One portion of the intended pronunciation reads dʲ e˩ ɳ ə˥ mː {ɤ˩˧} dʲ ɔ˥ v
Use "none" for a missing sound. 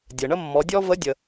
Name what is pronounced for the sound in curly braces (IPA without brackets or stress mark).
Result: ɔ˩˧